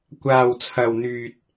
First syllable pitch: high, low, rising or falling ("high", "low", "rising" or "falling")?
low